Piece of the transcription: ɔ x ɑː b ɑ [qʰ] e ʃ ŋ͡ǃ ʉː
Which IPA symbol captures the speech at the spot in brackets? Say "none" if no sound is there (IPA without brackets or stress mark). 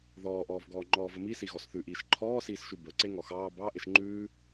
ʔ